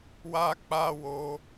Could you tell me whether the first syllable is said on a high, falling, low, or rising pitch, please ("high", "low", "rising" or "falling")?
high